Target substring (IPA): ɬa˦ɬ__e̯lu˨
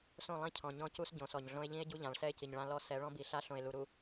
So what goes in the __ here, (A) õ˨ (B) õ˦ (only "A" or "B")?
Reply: A